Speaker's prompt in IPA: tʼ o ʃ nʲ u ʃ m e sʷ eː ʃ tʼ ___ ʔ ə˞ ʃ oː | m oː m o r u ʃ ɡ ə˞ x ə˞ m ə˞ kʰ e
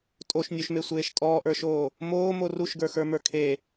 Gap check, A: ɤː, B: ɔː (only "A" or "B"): B